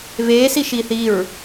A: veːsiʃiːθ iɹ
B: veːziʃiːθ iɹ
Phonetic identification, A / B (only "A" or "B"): A